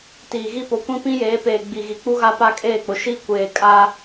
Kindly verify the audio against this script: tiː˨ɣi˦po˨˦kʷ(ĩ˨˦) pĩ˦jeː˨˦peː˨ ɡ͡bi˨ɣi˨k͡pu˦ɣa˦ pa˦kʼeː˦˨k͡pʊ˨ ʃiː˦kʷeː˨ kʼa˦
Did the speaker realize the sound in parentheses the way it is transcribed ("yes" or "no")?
no